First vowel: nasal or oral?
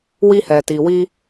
oral